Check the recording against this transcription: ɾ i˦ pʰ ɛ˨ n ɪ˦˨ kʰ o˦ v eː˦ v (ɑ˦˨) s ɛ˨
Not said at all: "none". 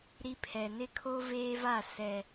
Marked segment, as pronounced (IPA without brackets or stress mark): a˦˨